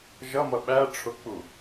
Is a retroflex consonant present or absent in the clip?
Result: present